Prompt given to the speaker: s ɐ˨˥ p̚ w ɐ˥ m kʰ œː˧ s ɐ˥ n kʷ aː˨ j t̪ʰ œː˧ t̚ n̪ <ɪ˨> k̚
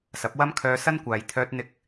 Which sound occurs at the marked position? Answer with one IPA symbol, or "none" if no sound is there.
ɪ˧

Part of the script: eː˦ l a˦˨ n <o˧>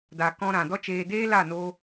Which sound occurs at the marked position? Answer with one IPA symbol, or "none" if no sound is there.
o˧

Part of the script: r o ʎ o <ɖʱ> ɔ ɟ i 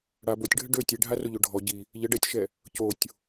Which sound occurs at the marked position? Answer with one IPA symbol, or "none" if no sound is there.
ɖʱ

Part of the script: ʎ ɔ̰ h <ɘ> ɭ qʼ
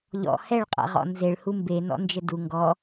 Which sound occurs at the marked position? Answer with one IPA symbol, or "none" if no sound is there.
ɛ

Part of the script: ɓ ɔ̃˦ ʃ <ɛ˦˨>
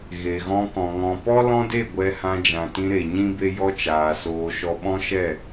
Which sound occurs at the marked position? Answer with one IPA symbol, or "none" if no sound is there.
ɛ˦˨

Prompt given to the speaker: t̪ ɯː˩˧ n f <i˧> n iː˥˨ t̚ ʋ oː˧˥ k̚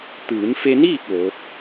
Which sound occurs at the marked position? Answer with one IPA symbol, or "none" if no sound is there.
e˧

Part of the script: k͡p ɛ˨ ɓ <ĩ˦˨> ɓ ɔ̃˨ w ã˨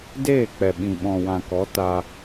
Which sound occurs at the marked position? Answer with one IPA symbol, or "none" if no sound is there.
ĩ˨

